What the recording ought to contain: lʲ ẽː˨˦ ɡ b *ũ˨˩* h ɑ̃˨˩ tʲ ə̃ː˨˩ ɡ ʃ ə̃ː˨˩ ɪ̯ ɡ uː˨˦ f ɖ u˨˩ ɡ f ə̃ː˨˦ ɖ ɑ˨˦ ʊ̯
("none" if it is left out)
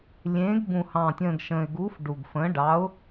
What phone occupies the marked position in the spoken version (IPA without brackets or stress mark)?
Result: ũ˨˩